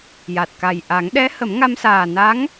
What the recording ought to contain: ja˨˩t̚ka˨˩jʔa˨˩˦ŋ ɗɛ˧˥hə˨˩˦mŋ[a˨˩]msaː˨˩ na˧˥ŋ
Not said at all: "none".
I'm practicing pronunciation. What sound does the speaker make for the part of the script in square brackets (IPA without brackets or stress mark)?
a˧